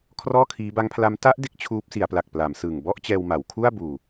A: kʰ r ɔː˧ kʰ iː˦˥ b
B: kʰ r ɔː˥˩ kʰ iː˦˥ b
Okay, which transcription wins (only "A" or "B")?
B